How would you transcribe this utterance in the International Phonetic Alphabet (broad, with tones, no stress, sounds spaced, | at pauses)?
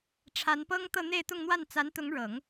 ʈ͡ʂʰ a˧˥ n p ɤ˥ ŋ t̪ ɤ˥˧ n̪ e˥˧ ɪ̯ t̪ ʊ˥˧ ŋ n̪ w a˥˩ n t͡s a˧˥ n t̪ ʊ˧˥ ŋ ɻ ɤ˨˩˦ ŋ